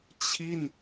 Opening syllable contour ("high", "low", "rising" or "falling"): falling